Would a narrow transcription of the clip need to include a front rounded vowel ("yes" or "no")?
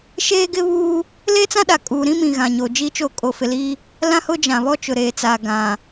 no